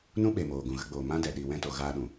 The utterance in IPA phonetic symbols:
n ũ˦ ɓ e˨ m oː˨ ɡ ũ˨ ɣ ə˧ ɡ͡b oː˨ m ã˦ d ɛ˨ ɗ i˨ w ɛ̃˧ t o˨ ɣ aː˧ ɗ ũ˨

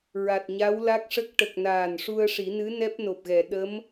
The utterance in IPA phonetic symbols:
ɹ a˨˩ t̚ ɲ a˧˥ w l a˦˥ k̚ ʂ ə˦˥ k̚ ʈ ə˨˩ k̚ n aː˨˩ n ʂ u˧ ə̯ ʂ i˨˩˦ n ɨ˧˥ n ɛ˦˥ p̚ n o˨˩ p̚ ɣ ɛ˨˩˨ ɗ ə˧˥ m

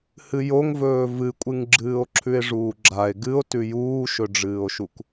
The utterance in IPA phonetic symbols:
h ɨ j o ŋ v ɵː v ɨ kʷʼ ɨ ŋ ɡ͡ǁ ɨː o̯ ǁʰ ʉ e̯ ʐ uː ɡ͡ǁ a e̯ ɡ ɨ o̯ t ʉ j uː ʃ ɵ ɖ͡ʐ ɨː o̯ ʃ u k

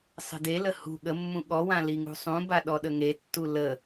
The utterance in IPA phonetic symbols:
sˤ ə̤ d e l ə h ṳ ɠ ə mː ũ ɠ ɔ w ã l i ŋ ṳ sˤ ũ b a ɗ ɔ ɗ ə ŋ e tː u l ə

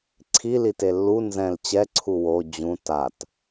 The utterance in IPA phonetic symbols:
ǀʰ i l i t e lː u n z ɛ̃ l t͡ɕ ɛ ǀʰ u w o d͡ʑ ũ t a t

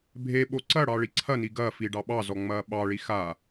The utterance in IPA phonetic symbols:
bʱ e ɓ o ǀ ɐ ɽ ɑ ɭ i ǀʰ ɐ n i ɡ ɐ f i ɖ ɑ ɓ ɑ z ɔ ŋ͡m ɐː ɓ ɑ ɭ i x a

